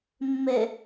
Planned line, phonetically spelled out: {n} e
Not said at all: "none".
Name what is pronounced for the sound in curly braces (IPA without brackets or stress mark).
mː